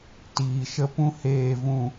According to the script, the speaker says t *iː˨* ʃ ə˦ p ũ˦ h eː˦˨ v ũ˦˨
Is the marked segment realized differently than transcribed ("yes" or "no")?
no